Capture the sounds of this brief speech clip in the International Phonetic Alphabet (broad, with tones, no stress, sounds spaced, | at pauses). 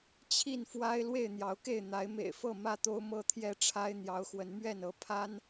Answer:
t͡ɕʰ i˥˨ n f w a˦ ɪ̯ l w e˥˨ ɪ̯ n̪ j ɑ˨˦ ʊ̯ k e˥˨ ɪ̯ n̪ a˨˦ ɪ̯ m ḛ˨˩ ɪ̯ f ɤ˥˨ m ä˥˨ t̪ o˦ ʊ̯ m ɤ˦ t̪ʰ j ɛ˥˨ ʈ͡ʂʰ a˦ ɪ̯ n̪ j ɑ˨˦ ʊ̯ x w ə˨˦ n m ɥ ɛ˥˨ n ɤ˨˦ pʰ a˦ n